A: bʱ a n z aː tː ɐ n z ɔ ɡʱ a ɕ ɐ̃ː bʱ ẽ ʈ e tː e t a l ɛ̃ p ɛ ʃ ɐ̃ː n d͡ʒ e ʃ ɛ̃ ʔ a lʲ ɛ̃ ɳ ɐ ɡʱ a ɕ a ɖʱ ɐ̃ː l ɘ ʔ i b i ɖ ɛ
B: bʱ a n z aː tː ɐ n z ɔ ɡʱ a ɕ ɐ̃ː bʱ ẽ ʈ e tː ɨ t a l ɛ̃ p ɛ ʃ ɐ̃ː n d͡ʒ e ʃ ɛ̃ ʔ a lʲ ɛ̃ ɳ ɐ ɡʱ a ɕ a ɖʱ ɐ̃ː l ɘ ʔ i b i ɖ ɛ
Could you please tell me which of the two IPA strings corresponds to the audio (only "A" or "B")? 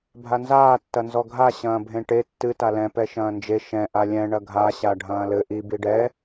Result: B